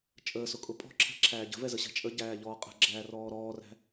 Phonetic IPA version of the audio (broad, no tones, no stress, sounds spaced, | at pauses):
t͡ʃʼ əː s ʊ kʼ ʊ pʼ ɔ̤ ǁʰ ɛ̤ ǁʰ æː ɟ ə̤ v ɛ z ə ɕ ɛ̤ t͡ʃʼ ə ɟ æː ʎ ɔː qʼ ə̤ ɡ͡ǁ æː r ɔː ɾ ɔː r æ̤